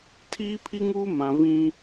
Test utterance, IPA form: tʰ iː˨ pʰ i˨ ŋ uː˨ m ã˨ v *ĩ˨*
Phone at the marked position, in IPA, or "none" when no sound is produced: ĩ˦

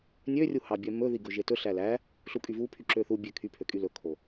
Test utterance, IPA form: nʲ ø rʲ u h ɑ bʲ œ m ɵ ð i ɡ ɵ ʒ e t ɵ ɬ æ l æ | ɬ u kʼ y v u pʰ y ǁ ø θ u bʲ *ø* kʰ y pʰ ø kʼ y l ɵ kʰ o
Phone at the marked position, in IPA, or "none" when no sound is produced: ø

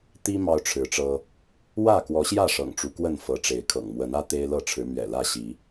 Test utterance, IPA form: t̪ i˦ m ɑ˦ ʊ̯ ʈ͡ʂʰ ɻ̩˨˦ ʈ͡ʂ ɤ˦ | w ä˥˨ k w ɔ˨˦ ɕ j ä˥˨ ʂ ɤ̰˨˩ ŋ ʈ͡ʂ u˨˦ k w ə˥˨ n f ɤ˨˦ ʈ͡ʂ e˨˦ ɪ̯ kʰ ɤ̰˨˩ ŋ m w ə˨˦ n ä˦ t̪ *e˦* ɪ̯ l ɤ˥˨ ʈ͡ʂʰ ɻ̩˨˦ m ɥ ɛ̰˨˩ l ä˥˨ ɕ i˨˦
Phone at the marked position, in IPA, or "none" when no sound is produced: e˦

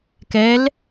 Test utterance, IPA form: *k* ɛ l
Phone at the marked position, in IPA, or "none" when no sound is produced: k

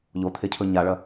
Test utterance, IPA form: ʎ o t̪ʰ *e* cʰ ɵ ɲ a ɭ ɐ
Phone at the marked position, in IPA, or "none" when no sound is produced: e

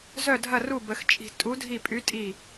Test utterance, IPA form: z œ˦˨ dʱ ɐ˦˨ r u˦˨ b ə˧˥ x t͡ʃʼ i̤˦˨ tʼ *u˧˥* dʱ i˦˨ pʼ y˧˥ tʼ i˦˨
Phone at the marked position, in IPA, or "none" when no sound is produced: u˧˥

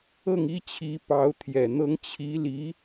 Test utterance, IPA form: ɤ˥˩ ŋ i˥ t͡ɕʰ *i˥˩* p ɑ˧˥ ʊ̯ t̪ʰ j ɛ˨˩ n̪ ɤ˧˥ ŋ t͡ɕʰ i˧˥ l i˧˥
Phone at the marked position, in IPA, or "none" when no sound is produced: i˧˥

